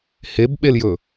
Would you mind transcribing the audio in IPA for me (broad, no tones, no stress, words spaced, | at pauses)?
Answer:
hebɓeljɵ